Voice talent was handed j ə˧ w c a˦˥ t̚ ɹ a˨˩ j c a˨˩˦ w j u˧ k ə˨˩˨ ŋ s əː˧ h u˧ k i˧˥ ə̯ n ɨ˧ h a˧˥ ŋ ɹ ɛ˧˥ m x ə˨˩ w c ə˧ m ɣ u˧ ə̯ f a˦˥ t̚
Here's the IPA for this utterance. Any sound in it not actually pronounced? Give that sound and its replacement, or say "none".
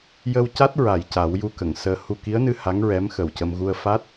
none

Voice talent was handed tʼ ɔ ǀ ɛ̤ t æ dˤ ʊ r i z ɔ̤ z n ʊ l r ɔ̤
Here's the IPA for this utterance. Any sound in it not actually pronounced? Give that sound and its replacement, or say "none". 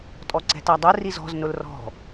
none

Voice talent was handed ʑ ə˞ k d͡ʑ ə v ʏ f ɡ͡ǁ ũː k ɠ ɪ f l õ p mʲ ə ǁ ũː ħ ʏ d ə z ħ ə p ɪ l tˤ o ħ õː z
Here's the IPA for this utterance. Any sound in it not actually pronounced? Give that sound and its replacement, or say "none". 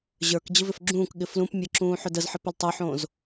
õ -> ũ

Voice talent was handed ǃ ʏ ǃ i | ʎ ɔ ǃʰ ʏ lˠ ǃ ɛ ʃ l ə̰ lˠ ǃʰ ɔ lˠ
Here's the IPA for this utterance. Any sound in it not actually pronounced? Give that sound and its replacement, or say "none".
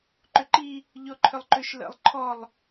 ɛ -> ʏ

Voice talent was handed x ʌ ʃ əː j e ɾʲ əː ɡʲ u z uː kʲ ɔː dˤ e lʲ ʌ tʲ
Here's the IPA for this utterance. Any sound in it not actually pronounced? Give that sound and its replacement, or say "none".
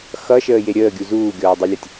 kʲ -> ɡʲ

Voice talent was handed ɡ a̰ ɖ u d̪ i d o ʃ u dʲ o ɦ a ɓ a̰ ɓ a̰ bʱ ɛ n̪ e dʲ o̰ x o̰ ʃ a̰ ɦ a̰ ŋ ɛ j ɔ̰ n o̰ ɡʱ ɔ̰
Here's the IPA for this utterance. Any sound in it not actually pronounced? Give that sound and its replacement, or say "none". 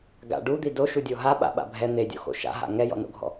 none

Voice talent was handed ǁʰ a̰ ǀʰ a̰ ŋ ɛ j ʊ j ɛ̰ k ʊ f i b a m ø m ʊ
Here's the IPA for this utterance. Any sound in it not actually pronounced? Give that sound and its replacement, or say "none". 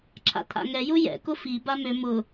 ǀʰ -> t̪ʰ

